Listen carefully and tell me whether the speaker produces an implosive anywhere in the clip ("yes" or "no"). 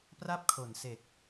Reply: no